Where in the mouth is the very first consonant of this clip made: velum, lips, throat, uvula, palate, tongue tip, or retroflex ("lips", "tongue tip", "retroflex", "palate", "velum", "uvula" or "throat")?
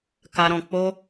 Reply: velum